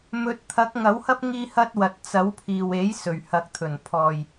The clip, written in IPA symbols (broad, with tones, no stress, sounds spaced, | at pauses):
m ɵ˨˥ t̚ t̪ʰ ɐ˨˥ k̚ ŋ ɐ˨˥ w h ɐ˥ p̚ ŋ iː˧ h ɐ˧ t̚ w ɐ˨ t̚ t͡s ɐ˨˥ w pʰ iː˨ w e˨˥ j s ɵ˨˩ ɥ h ɐ˨ k̚ t̪ʰ ɵ˨˩ n pʰ ɔː˨ j